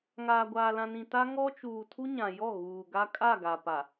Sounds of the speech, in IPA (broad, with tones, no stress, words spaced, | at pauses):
ŋaː˨ɡʷaː˨lã˨nĩ˨ ta˦ ŋɔ˦t͡ʃuː˨ tʰu˦ɲã˨jɔ˦˨ ɣuː˨ɡa˦ kʼa˦˨ɡa˨pa˨